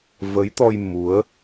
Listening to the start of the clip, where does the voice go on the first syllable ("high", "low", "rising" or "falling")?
rising